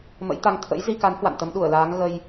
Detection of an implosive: present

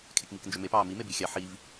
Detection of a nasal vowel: absent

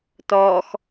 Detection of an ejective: absent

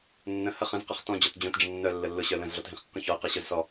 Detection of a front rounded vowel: present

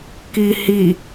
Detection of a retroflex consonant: absent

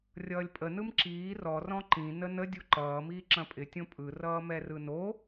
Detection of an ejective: present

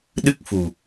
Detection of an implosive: present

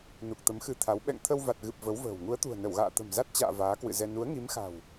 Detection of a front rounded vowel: absent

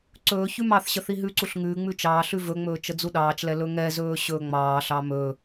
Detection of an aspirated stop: absent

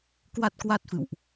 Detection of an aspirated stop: absent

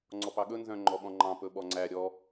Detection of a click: present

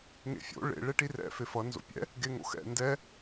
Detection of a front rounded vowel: absent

